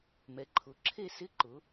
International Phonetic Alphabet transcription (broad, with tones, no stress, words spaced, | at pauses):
mɛ˩˧ǃʰʊ˩˧ ǁʰe˥˧sɪ˥ ǃʊ˩˧